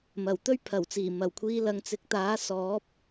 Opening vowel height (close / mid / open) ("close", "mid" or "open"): open